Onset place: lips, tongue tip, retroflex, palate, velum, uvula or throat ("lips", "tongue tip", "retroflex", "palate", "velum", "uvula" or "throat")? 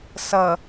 tongue tip